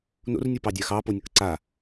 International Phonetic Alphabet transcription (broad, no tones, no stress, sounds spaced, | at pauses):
n o̰ r nʲ o p ɑ dʲ a x ɑ p o nʲ ʌ k ǀ a